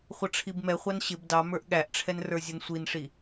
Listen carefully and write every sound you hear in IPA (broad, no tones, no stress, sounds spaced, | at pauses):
χʷ ʌ ʈ͡ʂʰ i b m ɛ χʷ ɑ n ɕ ɪ b d ɑ m ə˞ ʔ ɠ æ ʔ ʈ͡ʂʰ ɛ n r ə˞ zʲ ʌ n sʷ i n ʂ i